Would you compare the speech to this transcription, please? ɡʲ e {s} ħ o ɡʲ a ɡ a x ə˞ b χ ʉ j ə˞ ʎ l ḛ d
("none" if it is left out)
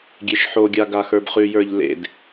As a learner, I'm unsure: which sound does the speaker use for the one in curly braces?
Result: ʃ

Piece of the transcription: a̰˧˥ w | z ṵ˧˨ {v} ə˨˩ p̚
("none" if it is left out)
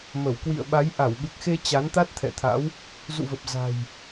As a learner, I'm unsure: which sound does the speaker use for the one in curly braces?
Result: v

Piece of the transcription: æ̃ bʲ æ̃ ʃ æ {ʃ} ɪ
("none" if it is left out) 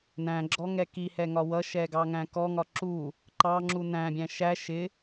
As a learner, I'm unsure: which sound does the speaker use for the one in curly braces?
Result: ʃ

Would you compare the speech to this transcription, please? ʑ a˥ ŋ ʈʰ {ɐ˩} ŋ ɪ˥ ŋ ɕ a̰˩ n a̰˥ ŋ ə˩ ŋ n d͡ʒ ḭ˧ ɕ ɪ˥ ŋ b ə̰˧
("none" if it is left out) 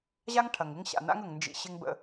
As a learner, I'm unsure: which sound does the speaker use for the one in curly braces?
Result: ɐ˩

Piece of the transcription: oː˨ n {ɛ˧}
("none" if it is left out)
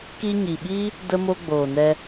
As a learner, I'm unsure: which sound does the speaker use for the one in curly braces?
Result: ɛ˧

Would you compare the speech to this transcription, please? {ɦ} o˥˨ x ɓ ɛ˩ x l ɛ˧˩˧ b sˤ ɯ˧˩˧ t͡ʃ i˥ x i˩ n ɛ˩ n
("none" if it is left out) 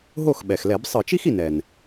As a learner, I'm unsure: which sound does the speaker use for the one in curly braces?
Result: ɦ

